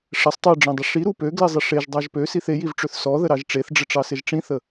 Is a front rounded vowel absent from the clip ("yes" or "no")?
no